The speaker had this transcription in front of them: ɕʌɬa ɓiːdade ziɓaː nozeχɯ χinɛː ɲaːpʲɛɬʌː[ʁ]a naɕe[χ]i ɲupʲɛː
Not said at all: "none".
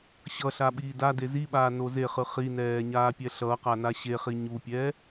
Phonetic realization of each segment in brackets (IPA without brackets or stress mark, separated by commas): q, χ